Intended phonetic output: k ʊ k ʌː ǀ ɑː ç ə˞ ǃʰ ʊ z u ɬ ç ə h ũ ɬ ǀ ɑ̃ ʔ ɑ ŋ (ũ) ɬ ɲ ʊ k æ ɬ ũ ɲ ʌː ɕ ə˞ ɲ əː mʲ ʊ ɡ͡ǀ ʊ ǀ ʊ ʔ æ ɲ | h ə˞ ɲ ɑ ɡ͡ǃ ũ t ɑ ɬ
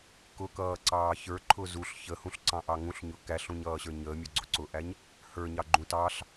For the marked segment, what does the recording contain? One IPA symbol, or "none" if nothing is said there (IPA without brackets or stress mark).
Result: ũ